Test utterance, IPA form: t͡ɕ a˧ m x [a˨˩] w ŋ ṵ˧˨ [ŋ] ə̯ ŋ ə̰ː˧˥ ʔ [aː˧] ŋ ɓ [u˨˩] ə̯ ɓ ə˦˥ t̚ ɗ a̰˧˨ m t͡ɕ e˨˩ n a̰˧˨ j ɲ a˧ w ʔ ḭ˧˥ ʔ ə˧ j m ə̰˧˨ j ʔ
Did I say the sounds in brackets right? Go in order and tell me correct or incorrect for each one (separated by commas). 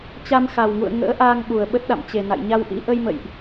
correct, incorrect, correct, correct